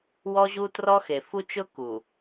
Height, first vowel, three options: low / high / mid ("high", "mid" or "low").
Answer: mid